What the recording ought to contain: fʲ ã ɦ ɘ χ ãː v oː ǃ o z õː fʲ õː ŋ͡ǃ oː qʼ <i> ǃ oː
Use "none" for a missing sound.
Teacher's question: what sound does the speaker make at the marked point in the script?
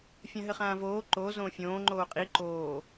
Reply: i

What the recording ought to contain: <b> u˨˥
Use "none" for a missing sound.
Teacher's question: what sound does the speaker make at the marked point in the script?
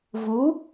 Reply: v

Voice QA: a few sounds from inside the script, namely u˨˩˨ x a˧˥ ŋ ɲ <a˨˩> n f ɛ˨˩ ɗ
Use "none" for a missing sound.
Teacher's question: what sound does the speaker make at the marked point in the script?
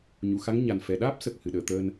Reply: a˨˩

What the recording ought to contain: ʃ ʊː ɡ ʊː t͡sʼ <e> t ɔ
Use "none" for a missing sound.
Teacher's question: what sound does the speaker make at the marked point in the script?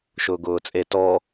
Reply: e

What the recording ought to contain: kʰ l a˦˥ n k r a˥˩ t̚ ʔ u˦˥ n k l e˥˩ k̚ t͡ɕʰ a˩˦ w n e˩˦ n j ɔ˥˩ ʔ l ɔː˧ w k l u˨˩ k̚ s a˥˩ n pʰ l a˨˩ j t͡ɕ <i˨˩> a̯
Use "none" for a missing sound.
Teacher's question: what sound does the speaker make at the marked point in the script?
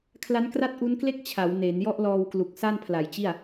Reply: i˥˩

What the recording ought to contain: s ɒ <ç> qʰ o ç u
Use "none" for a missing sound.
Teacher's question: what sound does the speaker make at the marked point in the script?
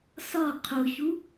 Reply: none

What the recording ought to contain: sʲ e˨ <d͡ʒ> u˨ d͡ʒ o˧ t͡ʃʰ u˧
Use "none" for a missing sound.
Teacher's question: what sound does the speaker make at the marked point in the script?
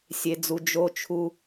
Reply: d͡z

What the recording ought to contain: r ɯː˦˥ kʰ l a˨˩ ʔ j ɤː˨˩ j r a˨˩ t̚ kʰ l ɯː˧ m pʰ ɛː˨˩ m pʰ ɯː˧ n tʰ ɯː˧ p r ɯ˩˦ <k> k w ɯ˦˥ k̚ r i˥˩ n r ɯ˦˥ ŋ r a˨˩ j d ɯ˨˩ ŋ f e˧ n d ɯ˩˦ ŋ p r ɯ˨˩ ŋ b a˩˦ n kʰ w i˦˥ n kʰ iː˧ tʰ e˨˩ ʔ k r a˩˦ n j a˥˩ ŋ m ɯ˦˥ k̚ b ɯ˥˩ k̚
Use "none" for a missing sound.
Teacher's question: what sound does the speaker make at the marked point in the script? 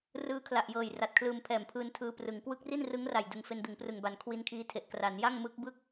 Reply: ŋ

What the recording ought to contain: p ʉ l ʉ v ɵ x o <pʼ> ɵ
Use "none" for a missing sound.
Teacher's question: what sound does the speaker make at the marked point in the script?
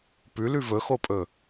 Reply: pʼ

